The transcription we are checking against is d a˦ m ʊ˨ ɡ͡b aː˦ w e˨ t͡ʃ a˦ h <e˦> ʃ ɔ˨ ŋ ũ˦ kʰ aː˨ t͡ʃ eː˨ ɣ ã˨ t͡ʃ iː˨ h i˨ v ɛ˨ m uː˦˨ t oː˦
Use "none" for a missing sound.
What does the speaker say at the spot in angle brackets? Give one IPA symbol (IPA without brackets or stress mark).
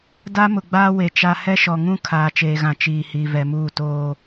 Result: ɛ˦